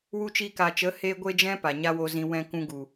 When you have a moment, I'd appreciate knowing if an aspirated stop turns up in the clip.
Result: no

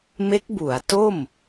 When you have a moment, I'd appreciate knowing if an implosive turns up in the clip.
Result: no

